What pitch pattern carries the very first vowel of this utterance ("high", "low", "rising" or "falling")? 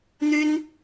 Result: high